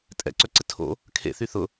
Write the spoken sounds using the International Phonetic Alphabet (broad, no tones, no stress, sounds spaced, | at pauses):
tʼ ɛ̰ ǀ œ ǀ ɪ tʰ o̰ | kʰ ḛ θ y θ ʊ